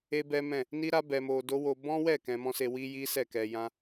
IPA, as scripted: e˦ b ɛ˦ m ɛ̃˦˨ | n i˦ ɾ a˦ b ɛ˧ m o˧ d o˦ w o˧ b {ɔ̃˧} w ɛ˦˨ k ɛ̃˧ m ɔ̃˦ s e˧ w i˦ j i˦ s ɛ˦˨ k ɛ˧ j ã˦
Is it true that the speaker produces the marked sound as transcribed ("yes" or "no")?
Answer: no